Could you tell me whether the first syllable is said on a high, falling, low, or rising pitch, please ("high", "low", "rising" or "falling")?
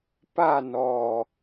falling